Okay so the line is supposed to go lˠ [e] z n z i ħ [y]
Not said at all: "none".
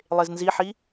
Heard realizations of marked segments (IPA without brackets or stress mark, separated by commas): e, i